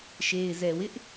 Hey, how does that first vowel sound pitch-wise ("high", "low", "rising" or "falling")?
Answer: low